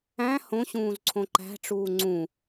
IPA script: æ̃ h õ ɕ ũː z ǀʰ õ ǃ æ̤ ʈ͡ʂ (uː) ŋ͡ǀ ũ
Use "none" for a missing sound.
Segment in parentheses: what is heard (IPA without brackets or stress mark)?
uː